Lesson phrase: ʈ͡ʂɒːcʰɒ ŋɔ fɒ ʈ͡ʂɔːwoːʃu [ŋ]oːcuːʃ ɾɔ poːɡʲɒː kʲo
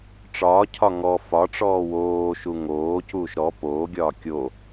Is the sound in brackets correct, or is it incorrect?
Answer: correct